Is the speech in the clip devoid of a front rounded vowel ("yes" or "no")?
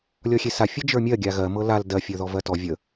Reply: yes